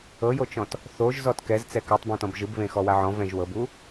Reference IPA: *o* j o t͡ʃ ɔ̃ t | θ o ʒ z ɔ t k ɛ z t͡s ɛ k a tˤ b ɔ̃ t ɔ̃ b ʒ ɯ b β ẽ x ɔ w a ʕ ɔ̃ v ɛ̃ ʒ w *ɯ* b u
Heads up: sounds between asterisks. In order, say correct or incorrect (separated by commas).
incorrect, incorrect